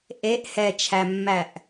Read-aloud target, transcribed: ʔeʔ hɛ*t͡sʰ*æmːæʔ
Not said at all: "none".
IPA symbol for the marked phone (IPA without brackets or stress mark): t͡ʃʰ